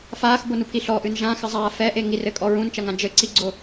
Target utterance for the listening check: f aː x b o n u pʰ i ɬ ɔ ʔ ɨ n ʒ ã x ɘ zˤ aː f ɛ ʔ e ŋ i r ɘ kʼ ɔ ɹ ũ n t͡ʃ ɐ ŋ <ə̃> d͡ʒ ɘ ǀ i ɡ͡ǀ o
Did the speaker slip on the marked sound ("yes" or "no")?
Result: yes